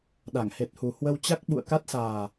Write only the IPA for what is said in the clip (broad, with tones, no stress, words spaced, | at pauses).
ɗa˧˩ŋ he˨˩t̚hu˨˩hwə˧wt͡ɕa˦˥k̚ ɓṵ˧˨ə̯ka˦˥t̚saː˨˩